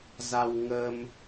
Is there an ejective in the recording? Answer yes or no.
no